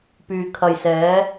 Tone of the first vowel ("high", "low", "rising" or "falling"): low